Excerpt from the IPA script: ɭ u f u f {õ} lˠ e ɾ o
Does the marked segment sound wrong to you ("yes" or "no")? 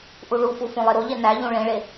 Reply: no